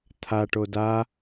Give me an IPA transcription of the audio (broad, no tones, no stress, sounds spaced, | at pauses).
t̪ʰ a ʈ o d a